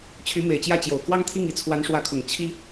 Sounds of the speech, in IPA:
t͡ɕʰy˧˥me˨˩ɪ̯t͡ɕjä˥˩t͡ɕjo˨˩ʊ̯ kwɑ˥ŋt̪ʰi˥˩ŋi˧˥ t͡sʰwa˧˥nʂwä˧˥kʰʊ˨˩ŋ t͡ɕʰi˥

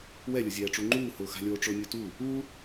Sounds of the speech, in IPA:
wɛlʲʊzʲɛːʈ͡ʂu ŋ͡ǃuːhʊːxa̤lʲoː ʈ͡ʂʊːnʲotu | u

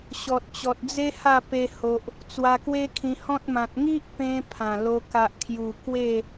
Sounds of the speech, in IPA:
ɕɔ˨t̚t͡ɕɔ˨t̚d͡ze˦ ha˥˧pe˧ho˨ʔ | t͡swa˧kwe˦kʰĩ˧hɔ̃˦t̚ mã˨t̚ ŋi˦ʔpẽ˧ pʰã˨˩lo˧ ka˨ʔkʰju˨˩ kwe˥˧

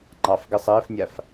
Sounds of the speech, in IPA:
ŋ͡ǃɑfɡɘ sˤɘːfnʲaf

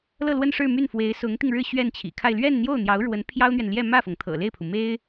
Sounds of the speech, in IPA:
lɤ˥˧lwə˥˧n ʂɻ̩˥˧my˥˩nfwe˧˥ɪ̯ sʊ˧˥ŋt̪i˧ŋ ɻɻ̩˥˧ ɕɥɛ˥˩nt͡ɕʰḭ˨˩kʰa˥˧ɪ̯ lɥɛ˥˧nn̪jo˥˩ʊ̯n̪jɑ˧˥ʊ̯ɻwə˧˥n pʰjɑ˥ʊ̯n̪ɥɛ˨n ljɛ˥˧ mä˥˩fɤ˩ŋt̪ʰɤ̰˨˩ le˥˩ɪ̯pʰu˩me˥ɪ̯

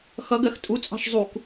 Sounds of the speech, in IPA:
xʌɡɜx tʼut͡sʼɑ̤ʃ zˤuk

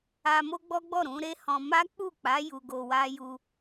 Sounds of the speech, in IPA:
a˧mo˦ɡ͡bɔ˦ɡ͡bɔ˦˨ ɾũ˨˦ɾe˦hɔ̃˧ ma˦k͡pu˦˨k͡pa˨˦ ju˧ɡo˧wa˦ ju˧

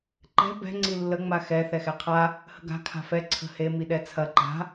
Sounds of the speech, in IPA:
ǃɛ̤ bɛ̤ ŋ͡ǀilːə ŋ͡maxɛ θɛxɛqʰa | hə̤ɡa̤ kʰa̤fɛ ǀʰə̤he miɗɛt͡sʰɐ ǃa̤

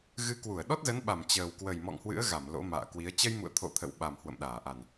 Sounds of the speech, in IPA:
ɣɨ˨˦kwu˧˩ə̯ ɗɔ˦˥t̚zə˨˦nɓa˧˩m t͡ɕəː˨˩wkwə˨˩j mɔ̰˧˨ŋhwɨ̰˧˥ə̯ ɣa˧˩m lo̰˧˥ma̰ː˧˨kwi˨˦ə̯ t͡ɕə˧jmṵ˧˨ə̯t̪ʰo̰˧˨ t̪ʰə̰˧˨wɓa˨˩m hwə̰˧˨mɗaː˧˩ʔa˨˩n

